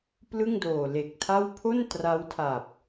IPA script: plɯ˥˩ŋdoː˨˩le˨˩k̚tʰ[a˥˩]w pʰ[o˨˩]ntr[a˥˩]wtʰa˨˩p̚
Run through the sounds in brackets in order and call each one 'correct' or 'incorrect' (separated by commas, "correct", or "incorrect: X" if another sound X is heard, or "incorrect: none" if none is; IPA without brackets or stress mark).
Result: correct, incorrect: o˥˩, incorrect: a˦˥